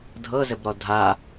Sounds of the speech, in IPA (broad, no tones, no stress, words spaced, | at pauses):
dʱɤzɘbɾɔ dʱa